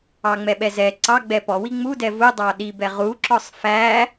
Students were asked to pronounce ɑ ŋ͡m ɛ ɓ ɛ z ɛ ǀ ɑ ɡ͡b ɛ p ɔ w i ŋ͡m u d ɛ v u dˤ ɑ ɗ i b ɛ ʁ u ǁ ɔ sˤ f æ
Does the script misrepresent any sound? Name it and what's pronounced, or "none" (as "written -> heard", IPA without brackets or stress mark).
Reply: none